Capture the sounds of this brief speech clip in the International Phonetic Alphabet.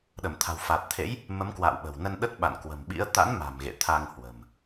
ɗ ə˧˩ m t̪ʰ a̤˨˩ w f a˨˩ t̚ t̪ʰ ḛ˧˥ j | m ə˨˦ m k w a̰ː˧˨ w ɓ ə̤˨˩ w n ə˧ n ɗ ə˦˥ t̚ ɓ a̰˧˨ n k w ə̤˨˩ m ɓ ḭ˧˥ ə̯ t̪ a̰˧˥ n m a̤˨˩ m ɣ ḛ˧˨ t̪ʰ a˧ ŋ h w ə̤˨˩ m

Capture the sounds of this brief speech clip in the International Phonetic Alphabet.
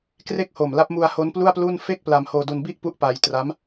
k r e˦˥ k̚ h o˨˩ m l a˦˥ p̚ m u˧ a̯ h o˦˥ n p l u˥˩ a̯ p l u˥˩ n f e˥˩ k̚ p l a˧ m h oː˧ d u˧ n b i˥˩ ʔ p u˦˥ ʔ p a˧ j t r a˦˥ m

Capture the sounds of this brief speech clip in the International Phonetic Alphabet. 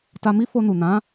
t a˧ m i˦ f o˧ n u˨ n ã˨˦

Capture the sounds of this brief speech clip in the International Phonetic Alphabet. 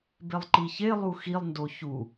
b e lˠ ǃ i ç e lˠ u x i lˠ n d o ç u

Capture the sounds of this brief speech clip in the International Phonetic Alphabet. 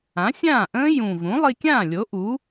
ã˩˥ sʲ ãː˥˩ ʔ ə̃ː˦˥ j ũ˨˩ v ũ˩˥ lˠ i˧ kʲ ãː˥˩ lʲ o˩˥ ʔ uː˩˥

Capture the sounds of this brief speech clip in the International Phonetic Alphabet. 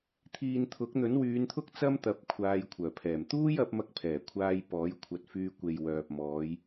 t̪ʰ iː˨ n t̪ʰ ʊ˨˥ k̚ n̪ ɵ˨˥ n w yː˨˧ n t̪ʰ ʊ˥ k̚ t͡s ɐ˥ m t̪ ɐ˨˥ p̚ kʷʰ aː˧ j kʷʰ œː˨˩ pʰ ɛː˨˩ m t̪ uː˥ j ɐ˨˥ p̚ m ɐ˧ k̚ pʰ ɛː˨˩ kʷʰ aː˧ j p ɔː˨˥ j kʷʰ ɐ˧ t̚ f yː˧ kʷ e˨ j w œː˨ p̚ m ɔː˨˧ j

